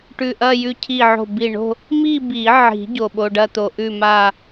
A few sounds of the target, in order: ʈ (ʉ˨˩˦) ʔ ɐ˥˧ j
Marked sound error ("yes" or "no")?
yes